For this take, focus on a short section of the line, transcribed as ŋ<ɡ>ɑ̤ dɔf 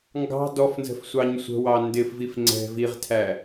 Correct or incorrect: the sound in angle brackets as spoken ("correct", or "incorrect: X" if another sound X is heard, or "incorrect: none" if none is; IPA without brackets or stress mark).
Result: correct